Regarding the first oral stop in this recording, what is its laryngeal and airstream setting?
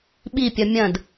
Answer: implosive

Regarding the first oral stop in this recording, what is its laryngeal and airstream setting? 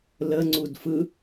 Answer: click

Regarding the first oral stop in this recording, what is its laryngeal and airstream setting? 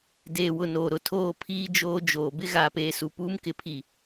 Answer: plain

